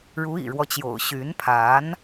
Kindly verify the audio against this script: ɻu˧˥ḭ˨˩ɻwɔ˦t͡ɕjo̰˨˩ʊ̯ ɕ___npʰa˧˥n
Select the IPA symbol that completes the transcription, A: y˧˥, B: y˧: A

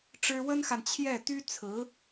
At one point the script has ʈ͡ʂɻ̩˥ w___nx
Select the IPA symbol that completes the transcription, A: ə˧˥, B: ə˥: B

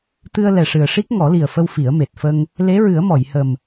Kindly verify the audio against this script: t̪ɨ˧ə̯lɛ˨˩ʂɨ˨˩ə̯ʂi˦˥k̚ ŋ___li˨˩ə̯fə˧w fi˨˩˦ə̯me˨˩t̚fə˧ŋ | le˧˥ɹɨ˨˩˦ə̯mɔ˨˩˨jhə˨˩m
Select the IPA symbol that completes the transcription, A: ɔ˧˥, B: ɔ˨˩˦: B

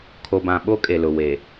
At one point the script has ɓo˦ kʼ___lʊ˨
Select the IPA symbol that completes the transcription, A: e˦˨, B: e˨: B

